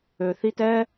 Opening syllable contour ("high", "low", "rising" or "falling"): low